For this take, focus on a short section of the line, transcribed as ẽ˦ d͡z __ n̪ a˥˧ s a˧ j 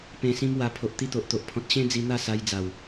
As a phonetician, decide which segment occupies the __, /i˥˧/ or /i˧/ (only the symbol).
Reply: i˧